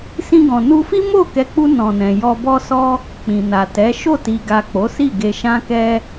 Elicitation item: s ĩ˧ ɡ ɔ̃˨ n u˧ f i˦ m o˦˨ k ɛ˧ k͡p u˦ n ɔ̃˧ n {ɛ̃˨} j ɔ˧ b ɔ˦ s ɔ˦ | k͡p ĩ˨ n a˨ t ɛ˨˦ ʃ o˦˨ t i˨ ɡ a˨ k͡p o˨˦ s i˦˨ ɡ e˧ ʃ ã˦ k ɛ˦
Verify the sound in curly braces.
correct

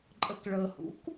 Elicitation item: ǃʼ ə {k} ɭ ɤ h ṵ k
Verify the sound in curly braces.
correct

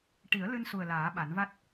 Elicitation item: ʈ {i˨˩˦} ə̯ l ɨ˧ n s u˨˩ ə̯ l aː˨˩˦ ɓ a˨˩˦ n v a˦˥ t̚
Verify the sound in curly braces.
correct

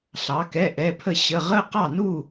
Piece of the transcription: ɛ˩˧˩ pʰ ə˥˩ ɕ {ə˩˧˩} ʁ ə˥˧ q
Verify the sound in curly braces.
correct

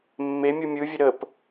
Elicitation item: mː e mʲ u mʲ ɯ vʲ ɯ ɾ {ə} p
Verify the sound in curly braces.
correct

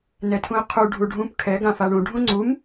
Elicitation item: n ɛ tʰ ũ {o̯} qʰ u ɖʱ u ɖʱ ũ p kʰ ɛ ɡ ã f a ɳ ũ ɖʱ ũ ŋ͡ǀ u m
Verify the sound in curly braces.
incorrect: e̯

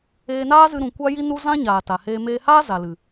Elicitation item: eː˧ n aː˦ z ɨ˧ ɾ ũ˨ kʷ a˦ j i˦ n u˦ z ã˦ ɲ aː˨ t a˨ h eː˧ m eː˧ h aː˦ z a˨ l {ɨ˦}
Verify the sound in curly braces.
incorrect: ɨ˨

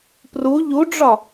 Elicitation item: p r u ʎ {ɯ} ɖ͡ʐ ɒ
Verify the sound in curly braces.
incorrect: u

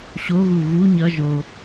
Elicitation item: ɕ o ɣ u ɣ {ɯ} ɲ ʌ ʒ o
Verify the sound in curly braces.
incorrect: u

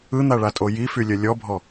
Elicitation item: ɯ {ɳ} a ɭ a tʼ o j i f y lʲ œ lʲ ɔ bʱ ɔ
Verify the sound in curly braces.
incorrect: n̪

